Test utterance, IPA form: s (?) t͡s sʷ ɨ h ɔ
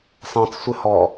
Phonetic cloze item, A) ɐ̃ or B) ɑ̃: B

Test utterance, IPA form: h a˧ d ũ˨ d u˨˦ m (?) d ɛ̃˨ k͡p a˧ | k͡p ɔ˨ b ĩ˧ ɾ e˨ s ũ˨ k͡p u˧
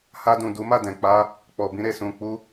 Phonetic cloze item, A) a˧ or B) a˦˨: B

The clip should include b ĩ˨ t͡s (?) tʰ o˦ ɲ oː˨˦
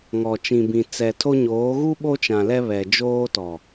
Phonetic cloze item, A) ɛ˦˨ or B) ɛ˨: B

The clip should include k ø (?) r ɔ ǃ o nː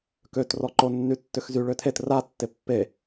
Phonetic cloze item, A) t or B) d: A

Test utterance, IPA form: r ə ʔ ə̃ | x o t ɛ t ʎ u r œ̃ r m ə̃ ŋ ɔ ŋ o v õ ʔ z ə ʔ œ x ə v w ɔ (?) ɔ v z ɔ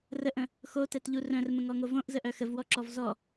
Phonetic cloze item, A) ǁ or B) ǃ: A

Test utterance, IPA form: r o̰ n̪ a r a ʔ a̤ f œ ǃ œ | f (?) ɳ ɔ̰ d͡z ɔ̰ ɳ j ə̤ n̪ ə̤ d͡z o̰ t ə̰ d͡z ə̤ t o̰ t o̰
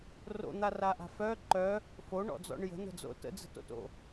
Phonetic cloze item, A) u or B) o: B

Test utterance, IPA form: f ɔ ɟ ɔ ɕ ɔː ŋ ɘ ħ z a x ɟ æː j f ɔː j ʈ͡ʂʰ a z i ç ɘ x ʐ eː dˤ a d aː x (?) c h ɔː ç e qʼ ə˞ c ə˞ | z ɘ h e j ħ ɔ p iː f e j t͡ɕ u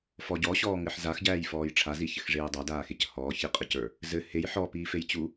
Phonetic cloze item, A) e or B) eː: A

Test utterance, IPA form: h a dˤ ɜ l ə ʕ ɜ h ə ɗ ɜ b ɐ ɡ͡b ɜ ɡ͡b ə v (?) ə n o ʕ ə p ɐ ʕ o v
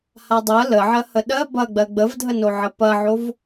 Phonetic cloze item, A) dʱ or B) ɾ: A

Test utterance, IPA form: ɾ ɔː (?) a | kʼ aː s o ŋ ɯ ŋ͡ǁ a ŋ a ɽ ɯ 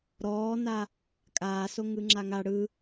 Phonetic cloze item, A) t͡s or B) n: B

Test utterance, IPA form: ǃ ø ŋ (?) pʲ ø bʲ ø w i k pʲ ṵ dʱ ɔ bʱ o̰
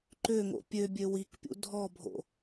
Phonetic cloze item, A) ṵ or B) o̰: B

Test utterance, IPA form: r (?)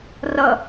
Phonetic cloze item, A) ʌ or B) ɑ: A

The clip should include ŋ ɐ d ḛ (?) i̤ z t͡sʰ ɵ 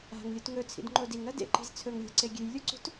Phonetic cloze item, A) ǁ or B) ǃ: B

